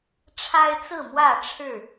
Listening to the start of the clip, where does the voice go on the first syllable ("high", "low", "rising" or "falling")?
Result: high